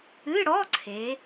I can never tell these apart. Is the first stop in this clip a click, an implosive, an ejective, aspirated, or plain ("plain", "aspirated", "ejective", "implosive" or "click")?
click